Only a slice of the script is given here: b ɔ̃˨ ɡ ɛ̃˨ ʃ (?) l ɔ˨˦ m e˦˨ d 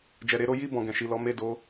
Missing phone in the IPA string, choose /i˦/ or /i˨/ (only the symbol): i˨